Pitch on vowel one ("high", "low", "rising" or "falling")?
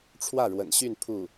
falling